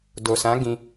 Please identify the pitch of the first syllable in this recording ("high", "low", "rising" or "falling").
low